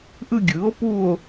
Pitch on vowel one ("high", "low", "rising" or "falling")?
falling